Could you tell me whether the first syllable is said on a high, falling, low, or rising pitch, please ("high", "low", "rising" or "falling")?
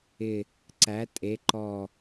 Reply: low